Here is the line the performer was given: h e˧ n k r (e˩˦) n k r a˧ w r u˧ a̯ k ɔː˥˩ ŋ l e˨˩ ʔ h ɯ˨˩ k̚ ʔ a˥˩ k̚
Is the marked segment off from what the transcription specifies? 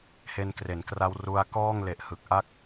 no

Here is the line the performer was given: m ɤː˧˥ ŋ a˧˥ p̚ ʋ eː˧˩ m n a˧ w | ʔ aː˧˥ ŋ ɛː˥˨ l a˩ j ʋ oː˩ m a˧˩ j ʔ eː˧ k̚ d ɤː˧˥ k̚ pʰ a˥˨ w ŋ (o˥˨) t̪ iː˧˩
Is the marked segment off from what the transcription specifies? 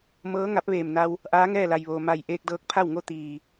no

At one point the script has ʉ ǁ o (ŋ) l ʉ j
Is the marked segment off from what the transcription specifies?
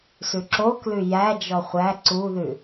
yes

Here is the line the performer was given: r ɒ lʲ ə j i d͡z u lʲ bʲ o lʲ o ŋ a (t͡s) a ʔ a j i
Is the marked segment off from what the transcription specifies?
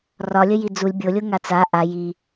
no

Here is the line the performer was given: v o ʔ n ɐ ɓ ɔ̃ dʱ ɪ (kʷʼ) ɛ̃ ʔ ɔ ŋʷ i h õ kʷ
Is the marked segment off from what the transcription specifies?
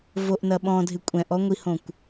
no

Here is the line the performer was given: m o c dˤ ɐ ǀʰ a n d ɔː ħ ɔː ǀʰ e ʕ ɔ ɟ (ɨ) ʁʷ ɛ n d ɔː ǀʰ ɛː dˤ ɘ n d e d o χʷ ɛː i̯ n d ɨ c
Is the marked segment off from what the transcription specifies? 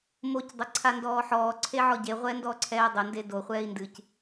yes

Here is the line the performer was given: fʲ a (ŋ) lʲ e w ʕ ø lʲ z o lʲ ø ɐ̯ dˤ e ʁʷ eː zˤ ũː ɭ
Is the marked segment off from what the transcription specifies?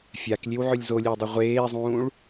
yes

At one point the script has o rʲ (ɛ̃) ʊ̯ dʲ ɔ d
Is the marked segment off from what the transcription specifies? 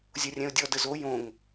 no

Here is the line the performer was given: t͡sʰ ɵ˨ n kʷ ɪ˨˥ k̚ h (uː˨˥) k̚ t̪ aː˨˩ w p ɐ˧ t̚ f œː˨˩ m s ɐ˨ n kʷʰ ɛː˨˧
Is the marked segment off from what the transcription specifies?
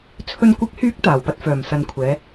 yes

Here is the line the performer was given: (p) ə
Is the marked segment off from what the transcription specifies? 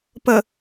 no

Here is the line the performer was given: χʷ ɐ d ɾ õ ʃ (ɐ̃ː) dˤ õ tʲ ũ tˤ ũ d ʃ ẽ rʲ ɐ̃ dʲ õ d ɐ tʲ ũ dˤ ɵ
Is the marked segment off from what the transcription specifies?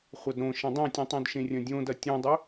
yes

